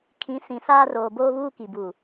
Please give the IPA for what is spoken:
kʰ ĩ˨˦ s ĩ˨ s aː˦ r oː˨ b oː˦ β uː˦ k i˨ b u˨

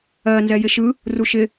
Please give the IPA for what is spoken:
ɜ n z ɛ j ɪ ʃ ɯ | r u ʃ ɪ

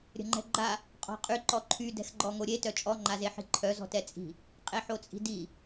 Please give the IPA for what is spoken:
ɾʲ ə̤ ŋ͡ǃ ɛ̤ ɡ͡ǃ a | qʼ ɔ̤ qʼ y ǃ ɔ ǃʰ y d ɛ̤ x ɡ͡ǃ ɔ ŋ o ɾʲ e t œ t͡ʃʼ ɔ ŋ͡ǃ a z e ħ i̤ ǃʰ œ z ɔ̤ t ɛ t͡sʼ i̤ | qʼ e ħ o t͡sʼ i̤ d i

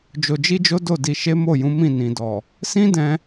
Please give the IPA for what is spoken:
d͡ʒ o˧ d͡ʒ i˦ d͡ʒ o˦ d o˦˨ d i˧ ʃ e˦ m o˦˨ j ũ˨˦ m ĩ˦˨ n ĩ˨ d ɔ˨ | s ĩ˦ d ɛ̃˧

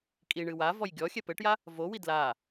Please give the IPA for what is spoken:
kʼ i ɳ ɨ w a v ɔ j ɡʲ ɔ xʲ ɛ p ɘ ʈ j a | v o w i d l a

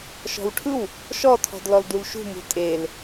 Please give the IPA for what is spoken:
ʃ ɔ̤ w ʈʰ ɯ w | ʃ ɔ tʰ ɔ̤ d l ɔ l d u l ʃ ṳ m ṳ tʼ e l

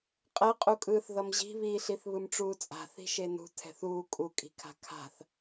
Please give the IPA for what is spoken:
qʼ ɛ qʼ u kʼ ɯː θ ð ʌ m ʑ i̤ β iː ɬ i θ β ɯ m ʈ͡ʂ uː t͡sʼ a̤ θ i̤ ʃ e n ṳ tʰ ɛ̤ θ uː kʼ u kʼ i̤ kʰ a̤ kʰ a̤ θ

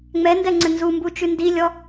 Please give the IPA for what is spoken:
ŋ͡m ɛ n d ɛ ŋ͡ǀ ɘ n z u m b u t͡ʃ ʉ n d i lʲ ɔ

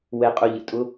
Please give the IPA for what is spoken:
w ɛ˧ qʼ ʊ˧ ʎ ə̰˩ tʼ ʊ˧˥

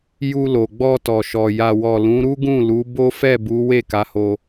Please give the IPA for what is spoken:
j u˧ l o˨ ɡ͡b ɔ˧ t ɔ˨ ʃ ɔ˨ j a˨ w ɔ˨ l ũ˨˦ ɾ u˦ ɡ ũ˦˨ l u˨˦ b o˦ f ɛ˦˨ b u˨˦ w e˦˨ k a˨˦ h o˧

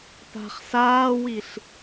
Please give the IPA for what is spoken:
p a̤ χ s aː w i ɬ

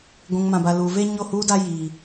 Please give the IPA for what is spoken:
ɡʷ ũ˨ ŋ m ã˨ b a˨ l uː˨ v e˦ ɲ o˦˨ h uː˦ d a˦ j iː˨

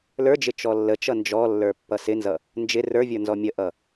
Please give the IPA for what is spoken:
l ə˞ d͡ʒ ɪ t͡ʃ ɔ lː ə t͡ʃ ʌ n d͡ʒ ɔ lː ə˞ pː ʌ s ɪ n z ʌ | n d͡ʒ ɪ r ə˞ vʲ ə˞ n z ɔ mʲ ə ʔ ʌ

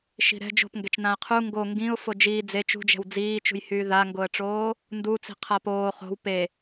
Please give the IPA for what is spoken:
ʃ i̤ ɾ ɛ̤ d͡ʒ o̤ p ŋ ɡ ɛ t͡ʃ n ã ə̯ qʰ u ŋ ɡ o ŋ ɡ ĩ ʊ̯ f o d͡ʒ iː d͡z e t͡ʃ ṳ d͡ʒ ɛ̤ w d͡z iː t͡ʃ ṳ j h yː ð a ŋ ɡ o ə̯ ʈ͡ʂ oː | n d u t͡s i̤ qʰ a p oː χ o̤ w p e

